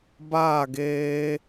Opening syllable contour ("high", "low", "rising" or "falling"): falling